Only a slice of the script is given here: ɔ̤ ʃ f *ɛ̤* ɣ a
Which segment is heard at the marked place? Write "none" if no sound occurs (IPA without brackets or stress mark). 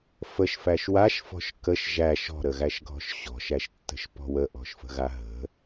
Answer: ə̤